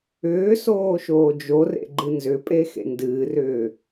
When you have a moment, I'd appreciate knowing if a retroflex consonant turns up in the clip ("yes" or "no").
no